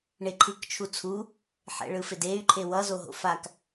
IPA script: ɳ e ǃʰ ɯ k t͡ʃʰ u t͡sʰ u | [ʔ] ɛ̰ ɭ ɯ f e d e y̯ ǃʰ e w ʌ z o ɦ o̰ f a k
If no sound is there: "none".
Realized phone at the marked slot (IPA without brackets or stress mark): ħ